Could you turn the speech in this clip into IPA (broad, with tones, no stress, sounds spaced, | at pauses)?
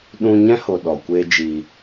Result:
ɗ ũ˧ ɲ ɛ̃˦ h o˧ ɗ ɔ˨ kʷ eː˧ d͡ʒ iː˧